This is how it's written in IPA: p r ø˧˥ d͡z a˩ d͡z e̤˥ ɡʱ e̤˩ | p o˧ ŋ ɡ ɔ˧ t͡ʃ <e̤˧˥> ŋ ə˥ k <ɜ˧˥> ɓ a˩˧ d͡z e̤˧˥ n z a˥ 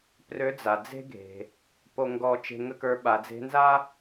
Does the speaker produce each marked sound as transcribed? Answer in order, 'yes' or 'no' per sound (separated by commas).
no, no